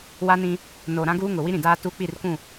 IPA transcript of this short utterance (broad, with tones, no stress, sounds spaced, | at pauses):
w a˦ n ĩ˦ | n o˨ ɾ ã˦ ɡ uː˦ ŋ ʊ˨ w i˦ ɾ ĩ˨ d aː˦ t u˦ k͡p i˦˨ r kʷ ũ˦˨